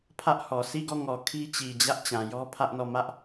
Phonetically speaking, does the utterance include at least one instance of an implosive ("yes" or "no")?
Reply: no